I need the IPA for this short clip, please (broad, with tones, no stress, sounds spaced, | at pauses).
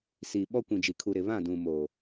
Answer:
s i˨ ɓ ɔ˦ kʷ ĩ˨ d͡ʒ i˨ kʰ u˨ ɾ ɪ˨ β ã˦˨ d ũ˨ m o˨